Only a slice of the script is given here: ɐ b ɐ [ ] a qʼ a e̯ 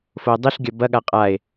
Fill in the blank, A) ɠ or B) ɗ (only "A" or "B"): A